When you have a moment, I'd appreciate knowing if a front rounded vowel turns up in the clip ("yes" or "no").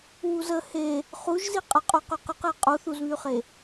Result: yes